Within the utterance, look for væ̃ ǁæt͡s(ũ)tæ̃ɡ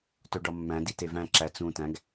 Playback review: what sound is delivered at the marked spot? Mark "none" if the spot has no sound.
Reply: ũ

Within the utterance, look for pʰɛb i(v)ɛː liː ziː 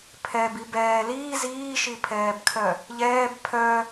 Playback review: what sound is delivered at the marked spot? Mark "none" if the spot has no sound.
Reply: b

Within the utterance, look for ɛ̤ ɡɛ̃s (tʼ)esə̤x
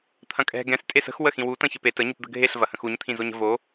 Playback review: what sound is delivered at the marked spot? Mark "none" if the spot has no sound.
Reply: tʼ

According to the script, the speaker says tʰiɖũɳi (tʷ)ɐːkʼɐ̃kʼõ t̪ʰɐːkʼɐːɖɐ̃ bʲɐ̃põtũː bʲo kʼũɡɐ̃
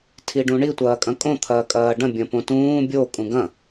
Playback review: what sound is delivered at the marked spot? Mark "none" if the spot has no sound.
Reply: tʷ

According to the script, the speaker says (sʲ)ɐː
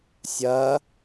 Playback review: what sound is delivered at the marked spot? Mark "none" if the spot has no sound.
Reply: sʲ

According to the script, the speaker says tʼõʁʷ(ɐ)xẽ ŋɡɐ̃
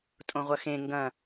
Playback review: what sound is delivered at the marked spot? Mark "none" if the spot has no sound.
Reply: ɐ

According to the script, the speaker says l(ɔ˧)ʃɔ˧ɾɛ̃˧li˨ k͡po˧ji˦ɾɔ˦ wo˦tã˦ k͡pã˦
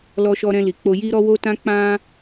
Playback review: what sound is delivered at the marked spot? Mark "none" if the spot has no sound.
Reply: ɔ˧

